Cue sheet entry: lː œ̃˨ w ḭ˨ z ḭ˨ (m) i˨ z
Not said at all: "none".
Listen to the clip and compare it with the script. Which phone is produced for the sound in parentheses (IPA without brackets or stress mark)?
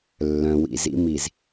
m